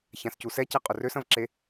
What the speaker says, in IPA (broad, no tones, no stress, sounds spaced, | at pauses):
ç ã s c u s ɛ c ɛ qʼ ʊ r ø s ɐ̃ v ǁ e